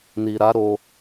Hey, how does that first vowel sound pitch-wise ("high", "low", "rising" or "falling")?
low